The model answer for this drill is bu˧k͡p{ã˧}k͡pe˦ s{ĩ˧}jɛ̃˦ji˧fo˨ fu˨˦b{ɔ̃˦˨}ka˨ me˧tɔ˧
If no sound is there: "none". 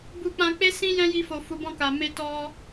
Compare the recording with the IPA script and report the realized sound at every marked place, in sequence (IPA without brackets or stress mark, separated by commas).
ã˧, ĩ˦, ɔ̃˦˨